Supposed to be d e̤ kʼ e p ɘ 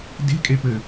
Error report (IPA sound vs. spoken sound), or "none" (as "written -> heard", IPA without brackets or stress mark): none